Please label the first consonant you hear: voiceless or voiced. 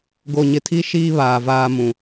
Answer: voiced